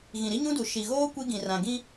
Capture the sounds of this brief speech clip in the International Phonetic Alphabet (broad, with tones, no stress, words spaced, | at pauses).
ɣĩ˨ɾi˦ɲũ˦du˨ ʃi˨ɣoː˦ kʷi˦ɡĩ˨rã˨ ɡĩ˦